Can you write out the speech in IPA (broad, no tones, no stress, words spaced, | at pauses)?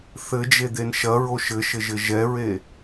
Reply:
θɘd͡ʒed̪en ʃɐɹo ʃɘʃɘʒɘ ʒɛɹe